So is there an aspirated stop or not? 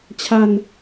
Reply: yes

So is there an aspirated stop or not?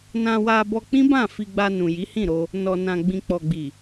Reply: no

